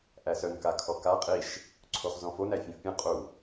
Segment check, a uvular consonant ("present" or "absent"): present